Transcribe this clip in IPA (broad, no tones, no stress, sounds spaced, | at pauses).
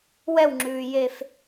w ɛ w ŋ͡ǁ ʉː j e f